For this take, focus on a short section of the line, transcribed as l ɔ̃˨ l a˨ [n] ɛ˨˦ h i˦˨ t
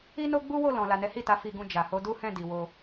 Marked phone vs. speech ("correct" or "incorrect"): correct